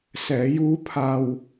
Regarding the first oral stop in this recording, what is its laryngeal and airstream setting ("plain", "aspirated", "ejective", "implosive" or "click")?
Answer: aspirated